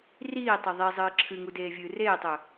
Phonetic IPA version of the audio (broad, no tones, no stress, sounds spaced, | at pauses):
r iː tˤ ɵ ðˤ i zˤ ɨː ǁʰ ɨ ŋ u d eː vʲ ɨː r eː tˤ ɵ